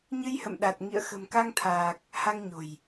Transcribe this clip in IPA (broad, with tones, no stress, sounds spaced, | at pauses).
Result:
ɲ ɨ˧ j h ə̰˧˨ m ɗ a˨˩ t̚ ŋ ḭ˧˨ ə̯ x ə̤˨˩ m k a˧ ŋ t̪ʰ aː˨˩ k̚ | h a˧ ŋ ɲ o̤˨˩ j